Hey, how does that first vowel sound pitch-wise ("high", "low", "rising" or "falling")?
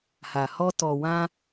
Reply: low